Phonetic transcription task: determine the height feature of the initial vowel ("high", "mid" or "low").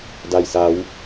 low